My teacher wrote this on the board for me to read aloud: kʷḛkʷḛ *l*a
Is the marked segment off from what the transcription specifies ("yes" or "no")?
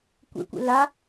no